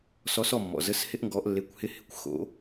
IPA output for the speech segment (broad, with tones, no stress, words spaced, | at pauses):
sɔ˧˥s ɔ˥˨mːɔ̰˨zə˧˥˧s hɪ˥ʔŋɡɔ˧˥ʔlːe˧˥˧kʷhɪ˥˨ hɪ˨kʷ xo̰˧˥